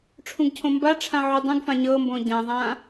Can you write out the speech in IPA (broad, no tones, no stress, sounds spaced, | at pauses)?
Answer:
ʈ͡ʂʰ ũ ɡ cʰ õ m b a ʈ͡ʂʰ ã ʕ u dˤ ũ ɡ f ã ɲ ɤ m b õ ɟ ã ðˤ ã